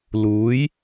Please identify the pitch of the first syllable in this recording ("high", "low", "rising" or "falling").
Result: rising